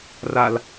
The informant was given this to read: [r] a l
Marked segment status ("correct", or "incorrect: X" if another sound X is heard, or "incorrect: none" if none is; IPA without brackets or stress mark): correct